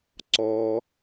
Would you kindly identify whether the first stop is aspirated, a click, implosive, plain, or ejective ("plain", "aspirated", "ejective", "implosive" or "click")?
click